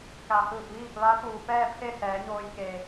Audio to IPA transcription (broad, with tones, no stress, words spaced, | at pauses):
ka˩hɯː˧˩p̚ʋiː˥˨p̚ ʋa˧˥ puː˩pɛː˥˨pʰe˥˨ sɛː˩˧ɲoː˧jke˩